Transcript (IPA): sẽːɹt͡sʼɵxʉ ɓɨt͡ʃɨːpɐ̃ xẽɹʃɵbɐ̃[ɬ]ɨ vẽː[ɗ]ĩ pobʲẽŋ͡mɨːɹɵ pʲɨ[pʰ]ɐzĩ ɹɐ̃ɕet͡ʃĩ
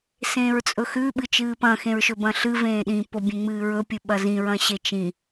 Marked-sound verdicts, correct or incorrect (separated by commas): correct, correct, incorrect